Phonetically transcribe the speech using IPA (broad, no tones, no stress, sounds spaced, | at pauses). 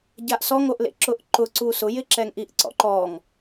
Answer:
ɟ a ʔ s ɔ ŋ o ʔ l ḛ ǁ ʊ ʔ ǃ ʊ ǀ u s ʊ j ɪ ǁ ɛ ŋ ʔ i ʔ ǀ ɔ̰ ǃ ɔ ŋ